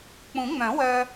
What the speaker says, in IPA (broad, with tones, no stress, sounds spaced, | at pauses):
k͡p ũ˨˩˦ ŋ͡m œ̃˨˩˦ w œ˧